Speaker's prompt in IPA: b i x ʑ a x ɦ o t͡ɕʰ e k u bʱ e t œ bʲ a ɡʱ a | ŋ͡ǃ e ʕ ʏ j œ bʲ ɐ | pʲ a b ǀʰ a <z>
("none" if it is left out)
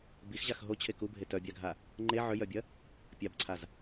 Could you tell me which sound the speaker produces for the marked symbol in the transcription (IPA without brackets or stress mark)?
z